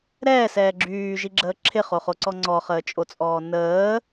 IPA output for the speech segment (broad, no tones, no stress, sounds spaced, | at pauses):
ɾ ɛː s ɛː ɡ͡ǁ yː ʒ i ɡ͡ǁ əː ǁʰ ɪ χ o χ o ǀ ɔ ŋ͡ǀ ɔ χ əː t͡ʃʼ o t͡sʼ ɔː n əː